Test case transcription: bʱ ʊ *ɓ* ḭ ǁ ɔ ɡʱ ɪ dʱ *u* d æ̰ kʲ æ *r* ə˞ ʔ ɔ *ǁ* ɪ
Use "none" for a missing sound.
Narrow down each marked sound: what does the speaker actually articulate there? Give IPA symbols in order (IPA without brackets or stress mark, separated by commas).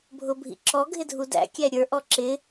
bʱ, u, ɾʲ, ǁ